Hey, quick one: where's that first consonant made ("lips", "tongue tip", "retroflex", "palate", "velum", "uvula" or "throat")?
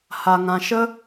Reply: throat